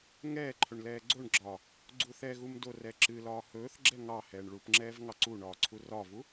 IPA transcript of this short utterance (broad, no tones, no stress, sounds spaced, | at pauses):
ŋ ɛː ǃʰ ɵ ɳ l ɛː ɡ͡ǀ o ɳ ɡ͡ǁ ɒː | ɡ͡ǀ u θ ɛ ɣ u m d o r ɛ ǁ ɨ l ɒː h ɵː θ ɡ͡ǁ ɛ ŋ ɑ h ɛː ɳ ɭ u p ŋ͡ǁ ɛː v ŋ ɑ ǀ u ɳ ɒː ǀʰ u r ɒ v u